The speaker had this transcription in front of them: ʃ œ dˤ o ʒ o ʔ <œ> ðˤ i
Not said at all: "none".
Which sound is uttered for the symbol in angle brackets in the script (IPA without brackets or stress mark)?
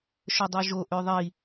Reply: ø